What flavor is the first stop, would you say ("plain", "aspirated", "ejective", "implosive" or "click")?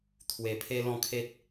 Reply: aspirated